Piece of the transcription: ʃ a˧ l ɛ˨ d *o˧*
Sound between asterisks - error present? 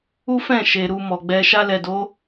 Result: yes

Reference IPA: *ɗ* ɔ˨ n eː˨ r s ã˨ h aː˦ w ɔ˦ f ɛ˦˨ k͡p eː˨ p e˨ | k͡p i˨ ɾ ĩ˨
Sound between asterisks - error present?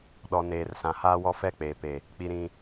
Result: no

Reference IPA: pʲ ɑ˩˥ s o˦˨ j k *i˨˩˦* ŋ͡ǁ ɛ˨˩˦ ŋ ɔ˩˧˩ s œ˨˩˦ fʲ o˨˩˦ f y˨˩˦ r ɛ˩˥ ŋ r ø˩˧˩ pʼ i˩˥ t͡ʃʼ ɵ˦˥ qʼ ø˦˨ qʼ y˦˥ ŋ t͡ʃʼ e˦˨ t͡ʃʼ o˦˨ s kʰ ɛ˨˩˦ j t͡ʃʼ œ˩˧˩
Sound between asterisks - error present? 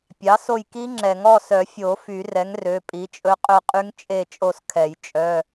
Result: yes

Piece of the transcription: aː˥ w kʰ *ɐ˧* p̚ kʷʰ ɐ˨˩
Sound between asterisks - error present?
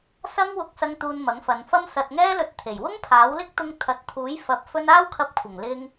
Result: no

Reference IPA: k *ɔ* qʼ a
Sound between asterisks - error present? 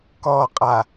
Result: no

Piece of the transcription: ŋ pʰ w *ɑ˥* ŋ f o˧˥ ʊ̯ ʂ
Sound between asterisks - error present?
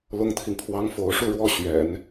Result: no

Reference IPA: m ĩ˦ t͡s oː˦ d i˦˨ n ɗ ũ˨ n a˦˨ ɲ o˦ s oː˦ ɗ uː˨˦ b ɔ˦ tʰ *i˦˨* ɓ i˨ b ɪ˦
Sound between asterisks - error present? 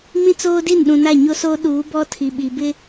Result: yes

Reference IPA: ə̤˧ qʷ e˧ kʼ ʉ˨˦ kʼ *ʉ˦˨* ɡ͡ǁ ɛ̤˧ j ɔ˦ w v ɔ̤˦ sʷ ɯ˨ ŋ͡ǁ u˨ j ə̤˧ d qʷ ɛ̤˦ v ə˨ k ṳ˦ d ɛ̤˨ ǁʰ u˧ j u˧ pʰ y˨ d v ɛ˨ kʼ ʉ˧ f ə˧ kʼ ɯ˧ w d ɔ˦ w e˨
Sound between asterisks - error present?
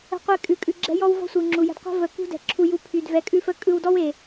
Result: yes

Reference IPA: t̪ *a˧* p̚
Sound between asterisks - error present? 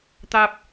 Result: yes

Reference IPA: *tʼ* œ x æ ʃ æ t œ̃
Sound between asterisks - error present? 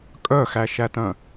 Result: yes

